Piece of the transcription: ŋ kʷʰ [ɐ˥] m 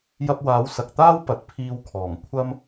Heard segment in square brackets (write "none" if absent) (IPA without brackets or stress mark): ɐ˥